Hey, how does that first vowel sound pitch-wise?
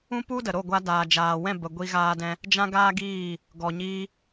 high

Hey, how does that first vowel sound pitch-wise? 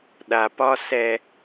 low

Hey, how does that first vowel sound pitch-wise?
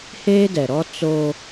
high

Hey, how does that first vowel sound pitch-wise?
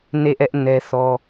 falling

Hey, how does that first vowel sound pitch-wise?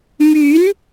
rising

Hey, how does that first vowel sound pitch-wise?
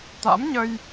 rising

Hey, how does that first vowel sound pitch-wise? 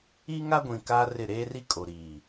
high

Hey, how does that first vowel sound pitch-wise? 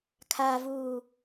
low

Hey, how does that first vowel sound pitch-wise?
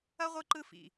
high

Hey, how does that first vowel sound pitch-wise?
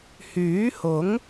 rising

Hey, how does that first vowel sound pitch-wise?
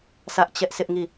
high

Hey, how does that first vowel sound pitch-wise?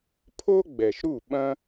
high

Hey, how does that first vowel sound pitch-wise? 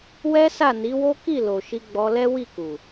high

